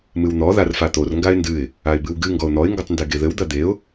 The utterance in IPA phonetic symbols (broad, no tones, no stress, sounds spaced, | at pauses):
m ɨ w n̪ ɔ ð a r f a t̪ o r ŋ ɡ a ɪ̯ n d ɨ ɪ̯ | a ɪ̯ b ɨ w ɡ ɨ ŋ ɡ ɔ ʊ̯ n̪ ɔ ɪ̯ ŋ ɡ o tˤ n d e ɡ e ð ɘ w d̪ ɐ d̪ e ʊ̯